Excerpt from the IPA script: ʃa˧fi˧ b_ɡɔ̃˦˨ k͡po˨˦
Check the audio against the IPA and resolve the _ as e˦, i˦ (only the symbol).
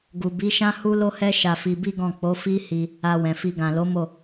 i˦